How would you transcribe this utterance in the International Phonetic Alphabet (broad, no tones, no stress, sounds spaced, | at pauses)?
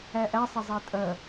æ ʔ æ sˤ ɐ zˤ æ tʼ ɐ